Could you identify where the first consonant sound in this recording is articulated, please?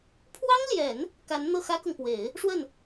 labial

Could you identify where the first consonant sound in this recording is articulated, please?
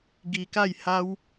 velar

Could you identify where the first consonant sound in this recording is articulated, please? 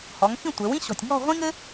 glottal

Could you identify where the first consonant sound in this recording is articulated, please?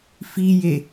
labial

